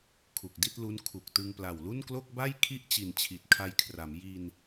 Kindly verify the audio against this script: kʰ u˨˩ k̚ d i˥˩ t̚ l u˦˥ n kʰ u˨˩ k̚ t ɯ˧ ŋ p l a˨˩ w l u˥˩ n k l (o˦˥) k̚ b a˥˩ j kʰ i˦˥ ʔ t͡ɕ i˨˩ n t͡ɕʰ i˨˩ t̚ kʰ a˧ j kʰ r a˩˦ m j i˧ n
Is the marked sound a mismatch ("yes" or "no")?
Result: yes